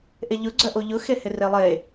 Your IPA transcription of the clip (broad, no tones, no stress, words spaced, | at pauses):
ʔeʎʊ ɡ͡ǀœʔoʎʊ xehɪrelˠe